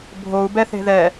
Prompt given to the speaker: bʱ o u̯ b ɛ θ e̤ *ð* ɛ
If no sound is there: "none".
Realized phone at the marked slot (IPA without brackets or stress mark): ð